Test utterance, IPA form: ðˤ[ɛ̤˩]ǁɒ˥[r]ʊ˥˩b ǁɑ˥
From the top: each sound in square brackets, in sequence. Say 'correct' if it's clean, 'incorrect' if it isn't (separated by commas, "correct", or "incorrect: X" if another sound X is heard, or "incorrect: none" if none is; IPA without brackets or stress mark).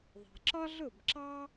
correct, incorrect: ɮ